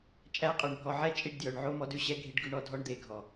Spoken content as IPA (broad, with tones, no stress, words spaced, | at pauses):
t͡ʃʼæ˧qʼɵ˨ɳbʱɔ˨ʕɛ˦ t͡ʃʼi˧ɖdjœ˨ɳʕo˦ mɔ˦dʉ˨ɕɛ˦ ɡʱi˧ɖ ɡʉ˧ɳɔ˧dʱɔ˦ɳ d̪e˨ ɡʱɔ˨